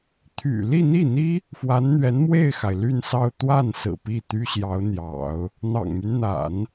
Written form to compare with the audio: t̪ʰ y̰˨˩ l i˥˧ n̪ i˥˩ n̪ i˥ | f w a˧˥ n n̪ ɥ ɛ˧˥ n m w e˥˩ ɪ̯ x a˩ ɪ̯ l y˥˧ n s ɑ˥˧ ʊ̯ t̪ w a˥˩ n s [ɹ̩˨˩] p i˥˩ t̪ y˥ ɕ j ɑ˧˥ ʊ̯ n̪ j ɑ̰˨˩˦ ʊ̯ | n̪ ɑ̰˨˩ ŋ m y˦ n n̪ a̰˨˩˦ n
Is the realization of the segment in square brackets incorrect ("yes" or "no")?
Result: no